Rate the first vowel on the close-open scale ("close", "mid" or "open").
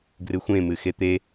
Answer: close